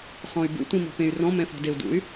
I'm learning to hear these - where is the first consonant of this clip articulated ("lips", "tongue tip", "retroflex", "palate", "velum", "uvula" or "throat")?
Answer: uvula